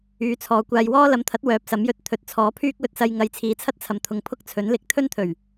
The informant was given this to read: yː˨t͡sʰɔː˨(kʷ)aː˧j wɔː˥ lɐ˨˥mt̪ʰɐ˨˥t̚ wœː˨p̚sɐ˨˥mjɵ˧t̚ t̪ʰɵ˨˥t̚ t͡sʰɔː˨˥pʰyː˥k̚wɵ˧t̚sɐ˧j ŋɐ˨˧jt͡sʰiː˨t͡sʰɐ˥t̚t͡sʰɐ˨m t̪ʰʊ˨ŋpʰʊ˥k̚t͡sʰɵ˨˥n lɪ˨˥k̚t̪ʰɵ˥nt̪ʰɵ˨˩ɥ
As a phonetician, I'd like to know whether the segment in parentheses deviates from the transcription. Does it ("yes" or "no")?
no